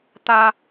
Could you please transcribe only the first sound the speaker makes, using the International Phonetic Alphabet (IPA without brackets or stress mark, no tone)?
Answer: t̪